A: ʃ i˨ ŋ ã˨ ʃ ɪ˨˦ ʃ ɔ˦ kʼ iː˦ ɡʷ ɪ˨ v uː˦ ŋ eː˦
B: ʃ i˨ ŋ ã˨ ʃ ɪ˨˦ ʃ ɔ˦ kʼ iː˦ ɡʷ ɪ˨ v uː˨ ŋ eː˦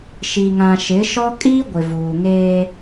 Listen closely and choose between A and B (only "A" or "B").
B